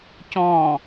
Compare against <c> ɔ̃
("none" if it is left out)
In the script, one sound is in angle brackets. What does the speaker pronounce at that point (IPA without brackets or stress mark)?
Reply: c